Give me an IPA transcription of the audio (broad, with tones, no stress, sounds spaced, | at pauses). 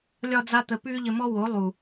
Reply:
lʲ ɒ˧ d͡z a˧ t̪ ə˨ p ʉː˦ ʎ ə˧ m ɔ˦ w o˨˦ lˠ u˨